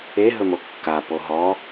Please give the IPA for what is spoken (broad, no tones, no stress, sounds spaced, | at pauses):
e ɦ ɵ m o kː a p o ɦ ɔ